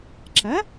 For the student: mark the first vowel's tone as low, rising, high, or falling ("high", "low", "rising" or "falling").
rising